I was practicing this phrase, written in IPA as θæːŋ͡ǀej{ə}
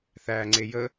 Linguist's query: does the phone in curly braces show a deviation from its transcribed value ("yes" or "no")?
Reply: no